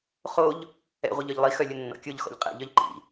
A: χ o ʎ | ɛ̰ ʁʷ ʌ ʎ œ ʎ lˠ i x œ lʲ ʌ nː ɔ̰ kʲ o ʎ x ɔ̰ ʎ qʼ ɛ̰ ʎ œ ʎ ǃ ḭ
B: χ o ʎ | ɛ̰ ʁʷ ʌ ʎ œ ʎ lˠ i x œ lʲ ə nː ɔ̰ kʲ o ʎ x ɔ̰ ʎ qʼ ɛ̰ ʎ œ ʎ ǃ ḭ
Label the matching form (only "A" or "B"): B